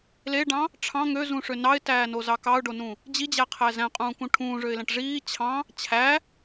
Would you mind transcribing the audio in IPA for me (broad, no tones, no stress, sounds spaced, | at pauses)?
l e ɖ ɑ̃ | ʈ͡ʂʰ ɑ̃ ŋ ø z ũ ʂ ø n ɑ ɪ̯ t æː n o z ɑ k ɑ ʊ̯ ɖ o n ũ | d͡ʑ i d͡ʑ æ qʰ æ z æ̃ qʼ ũː k ũ ʈʰ ũː ʐ ø ɪ̯ l æ̃ ʈ ʐ iː t͡ɕʰ ɑ̃ | t͡ɕʰ æ